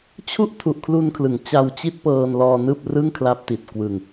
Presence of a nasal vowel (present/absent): absent